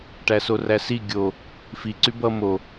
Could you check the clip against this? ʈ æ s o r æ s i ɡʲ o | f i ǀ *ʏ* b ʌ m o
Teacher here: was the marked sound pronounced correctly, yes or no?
no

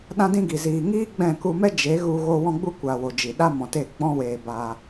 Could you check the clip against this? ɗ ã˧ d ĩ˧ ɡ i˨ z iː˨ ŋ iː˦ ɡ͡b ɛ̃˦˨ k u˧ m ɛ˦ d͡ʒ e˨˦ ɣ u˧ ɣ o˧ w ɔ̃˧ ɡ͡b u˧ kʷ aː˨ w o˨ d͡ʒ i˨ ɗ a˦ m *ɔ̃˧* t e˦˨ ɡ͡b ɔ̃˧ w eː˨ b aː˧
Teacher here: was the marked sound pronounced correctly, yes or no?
no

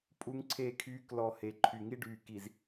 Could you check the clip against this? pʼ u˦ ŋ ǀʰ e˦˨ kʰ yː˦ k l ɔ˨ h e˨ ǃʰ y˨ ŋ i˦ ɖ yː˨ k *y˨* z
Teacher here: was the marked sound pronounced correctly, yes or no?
no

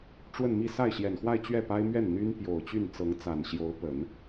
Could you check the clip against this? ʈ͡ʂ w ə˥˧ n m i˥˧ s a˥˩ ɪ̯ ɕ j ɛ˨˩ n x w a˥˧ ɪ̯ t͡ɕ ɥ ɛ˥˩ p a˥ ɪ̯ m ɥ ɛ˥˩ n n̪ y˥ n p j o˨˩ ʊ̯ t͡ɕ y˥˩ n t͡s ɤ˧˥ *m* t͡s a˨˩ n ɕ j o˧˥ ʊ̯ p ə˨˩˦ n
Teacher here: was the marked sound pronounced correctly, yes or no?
no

